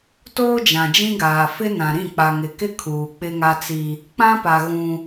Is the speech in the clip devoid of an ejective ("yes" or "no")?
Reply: yes